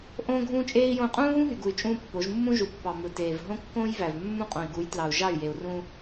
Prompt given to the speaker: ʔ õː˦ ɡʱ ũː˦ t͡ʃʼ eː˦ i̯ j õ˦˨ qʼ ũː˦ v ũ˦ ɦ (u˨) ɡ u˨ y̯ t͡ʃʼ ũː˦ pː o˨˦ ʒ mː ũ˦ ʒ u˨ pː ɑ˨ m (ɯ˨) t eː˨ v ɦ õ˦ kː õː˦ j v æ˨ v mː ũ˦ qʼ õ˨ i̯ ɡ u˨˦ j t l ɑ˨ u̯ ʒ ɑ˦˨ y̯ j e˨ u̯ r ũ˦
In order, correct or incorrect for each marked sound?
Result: incorrect: y˨, correct

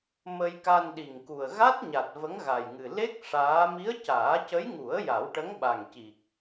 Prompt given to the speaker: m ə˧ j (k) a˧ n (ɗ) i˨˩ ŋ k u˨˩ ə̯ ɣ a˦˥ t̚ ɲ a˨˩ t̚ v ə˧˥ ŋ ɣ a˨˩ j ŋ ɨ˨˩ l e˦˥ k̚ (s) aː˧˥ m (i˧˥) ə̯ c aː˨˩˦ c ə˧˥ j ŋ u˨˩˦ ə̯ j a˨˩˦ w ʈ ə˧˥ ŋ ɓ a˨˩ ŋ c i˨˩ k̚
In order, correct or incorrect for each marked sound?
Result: correct, correct, incorrect: ʂ, correct

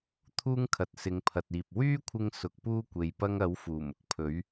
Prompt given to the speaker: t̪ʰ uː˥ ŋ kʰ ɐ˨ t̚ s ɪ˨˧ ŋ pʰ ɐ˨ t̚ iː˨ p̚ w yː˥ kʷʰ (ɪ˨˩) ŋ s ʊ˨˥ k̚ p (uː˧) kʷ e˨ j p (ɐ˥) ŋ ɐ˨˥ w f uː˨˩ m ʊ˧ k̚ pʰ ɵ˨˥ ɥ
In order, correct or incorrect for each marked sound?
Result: incorrect: ɪ˧, incorrect: uː˥, correct

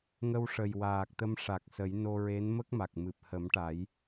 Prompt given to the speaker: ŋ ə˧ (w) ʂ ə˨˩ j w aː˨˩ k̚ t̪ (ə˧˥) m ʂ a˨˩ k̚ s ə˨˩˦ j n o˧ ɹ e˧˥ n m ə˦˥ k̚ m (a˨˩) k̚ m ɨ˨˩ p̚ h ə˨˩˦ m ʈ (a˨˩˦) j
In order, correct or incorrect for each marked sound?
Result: correct, incorrect: ə˧, correct, correct

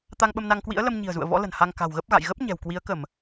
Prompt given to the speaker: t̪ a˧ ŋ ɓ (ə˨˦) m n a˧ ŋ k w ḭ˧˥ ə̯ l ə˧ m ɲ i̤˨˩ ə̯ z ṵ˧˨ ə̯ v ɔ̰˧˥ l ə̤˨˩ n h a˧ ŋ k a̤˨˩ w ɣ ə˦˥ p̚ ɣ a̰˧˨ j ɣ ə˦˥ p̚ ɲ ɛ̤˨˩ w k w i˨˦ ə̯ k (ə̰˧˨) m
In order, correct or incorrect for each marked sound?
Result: incorrect: ə˧, incorrect: ə˧˩˨

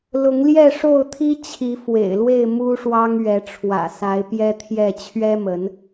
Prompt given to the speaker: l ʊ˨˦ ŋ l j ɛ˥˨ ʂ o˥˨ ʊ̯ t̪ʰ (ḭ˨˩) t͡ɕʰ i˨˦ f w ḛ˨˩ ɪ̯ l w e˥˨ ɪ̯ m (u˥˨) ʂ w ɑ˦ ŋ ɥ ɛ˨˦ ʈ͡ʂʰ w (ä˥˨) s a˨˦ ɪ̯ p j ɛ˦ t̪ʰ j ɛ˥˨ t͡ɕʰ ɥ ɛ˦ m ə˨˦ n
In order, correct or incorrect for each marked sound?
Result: incorrect: i˦, incorrect: u˦, incorrect: ä̰˨˩

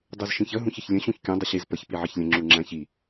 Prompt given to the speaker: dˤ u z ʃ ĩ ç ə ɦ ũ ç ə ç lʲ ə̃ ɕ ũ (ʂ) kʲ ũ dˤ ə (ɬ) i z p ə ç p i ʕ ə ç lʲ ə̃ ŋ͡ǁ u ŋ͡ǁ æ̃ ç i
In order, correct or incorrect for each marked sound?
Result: incorrect: ç, incorrect: ɕ

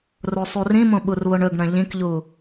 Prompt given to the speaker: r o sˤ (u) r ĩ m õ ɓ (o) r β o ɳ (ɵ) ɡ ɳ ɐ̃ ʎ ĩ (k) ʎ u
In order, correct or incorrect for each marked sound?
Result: correct, incorrect: u, correct, correct

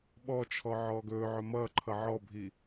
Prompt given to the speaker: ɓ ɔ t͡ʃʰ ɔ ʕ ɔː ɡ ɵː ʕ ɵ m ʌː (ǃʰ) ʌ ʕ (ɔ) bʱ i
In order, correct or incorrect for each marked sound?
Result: correct, correct

